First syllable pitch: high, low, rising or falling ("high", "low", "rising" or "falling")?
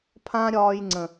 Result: high